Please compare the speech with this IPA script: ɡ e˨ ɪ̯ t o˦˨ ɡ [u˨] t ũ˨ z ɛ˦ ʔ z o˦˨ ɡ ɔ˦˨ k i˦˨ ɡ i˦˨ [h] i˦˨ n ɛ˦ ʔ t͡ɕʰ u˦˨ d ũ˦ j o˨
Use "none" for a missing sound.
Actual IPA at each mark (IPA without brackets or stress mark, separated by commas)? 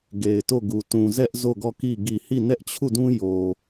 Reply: u˨, h